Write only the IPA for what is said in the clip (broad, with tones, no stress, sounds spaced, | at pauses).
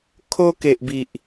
kʰ o˧ k e˨ ʔ b i˨ ʔ